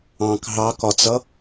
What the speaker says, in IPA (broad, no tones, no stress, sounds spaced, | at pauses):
ɑ̃ k ɦ ɑ k ɒ t͡s ʌ